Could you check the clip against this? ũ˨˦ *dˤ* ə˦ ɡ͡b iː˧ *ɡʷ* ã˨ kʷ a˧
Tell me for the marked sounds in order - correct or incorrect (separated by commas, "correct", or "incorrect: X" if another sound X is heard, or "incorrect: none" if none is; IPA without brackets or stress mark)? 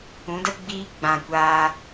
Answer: incorrect: d, incorrect: ɡ͡b